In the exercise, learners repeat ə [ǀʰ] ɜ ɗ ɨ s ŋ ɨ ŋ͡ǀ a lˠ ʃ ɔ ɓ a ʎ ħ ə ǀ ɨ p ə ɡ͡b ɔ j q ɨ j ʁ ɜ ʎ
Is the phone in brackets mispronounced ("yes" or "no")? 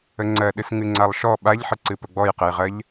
yes